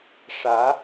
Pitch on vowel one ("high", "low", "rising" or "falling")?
rising